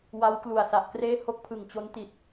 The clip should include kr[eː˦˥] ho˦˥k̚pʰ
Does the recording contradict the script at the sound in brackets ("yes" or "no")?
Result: yes